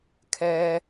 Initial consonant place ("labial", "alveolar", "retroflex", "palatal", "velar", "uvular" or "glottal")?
velar